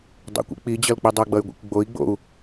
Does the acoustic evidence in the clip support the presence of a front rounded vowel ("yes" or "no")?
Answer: yes